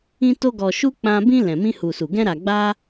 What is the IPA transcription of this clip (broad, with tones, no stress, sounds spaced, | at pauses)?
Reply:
ĩ˧ t o˧ ɡ ɔ˨ ʃ u˧ k͡p ã˧ b ĩ˧ l ɛ̃˨ m ĩ˧ h u˨ s u˨ ɡ ɛ̃˧ ɾ a˨ ɡ͡b a˧